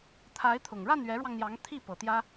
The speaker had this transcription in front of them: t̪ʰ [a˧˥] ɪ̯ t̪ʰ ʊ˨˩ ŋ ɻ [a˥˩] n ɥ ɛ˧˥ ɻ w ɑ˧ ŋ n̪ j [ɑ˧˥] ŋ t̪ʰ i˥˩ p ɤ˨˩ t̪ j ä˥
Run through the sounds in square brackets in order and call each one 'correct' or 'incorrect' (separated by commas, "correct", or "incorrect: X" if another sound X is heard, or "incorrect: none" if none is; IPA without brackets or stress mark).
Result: correct, correct, correct